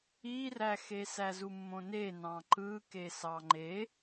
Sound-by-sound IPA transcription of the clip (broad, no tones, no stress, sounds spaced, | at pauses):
i r æ x e s æ z u mː õ n e n ɑ̃ ǃ ɯ k e s ɑ ŋ͡ǃ e